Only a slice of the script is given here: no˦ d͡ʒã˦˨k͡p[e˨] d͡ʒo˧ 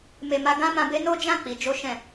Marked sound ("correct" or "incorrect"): incorrect